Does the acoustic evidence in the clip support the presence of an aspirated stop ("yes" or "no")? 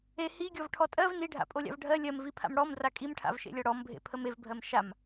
yes